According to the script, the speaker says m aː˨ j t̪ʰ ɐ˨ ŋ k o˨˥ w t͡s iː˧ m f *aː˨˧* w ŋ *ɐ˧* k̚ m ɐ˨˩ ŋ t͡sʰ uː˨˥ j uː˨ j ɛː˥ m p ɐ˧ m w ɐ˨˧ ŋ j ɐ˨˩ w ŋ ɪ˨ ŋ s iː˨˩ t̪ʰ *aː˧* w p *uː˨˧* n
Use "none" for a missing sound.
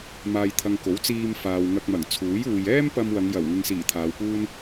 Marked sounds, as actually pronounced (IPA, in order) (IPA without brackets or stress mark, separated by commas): aː˨, ɐ˧, aː˨˧, uː˥